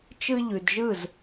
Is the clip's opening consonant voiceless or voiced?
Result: voiceless